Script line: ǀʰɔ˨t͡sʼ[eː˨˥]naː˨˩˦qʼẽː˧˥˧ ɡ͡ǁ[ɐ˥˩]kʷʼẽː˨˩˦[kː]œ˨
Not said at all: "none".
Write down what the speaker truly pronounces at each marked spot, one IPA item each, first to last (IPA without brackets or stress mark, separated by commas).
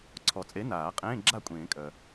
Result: e˨˥, a˥˩, kʼ